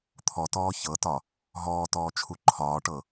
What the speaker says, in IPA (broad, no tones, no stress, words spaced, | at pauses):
t̪ʰɔtɔː çɤtɒ | ɦɔːtɔːt͡ʃʰu ǃʰɒːʈɤ